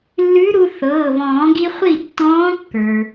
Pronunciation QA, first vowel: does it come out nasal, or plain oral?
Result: oral